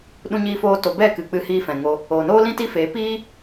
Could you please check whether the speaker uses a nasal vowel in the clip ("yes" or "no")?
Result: yes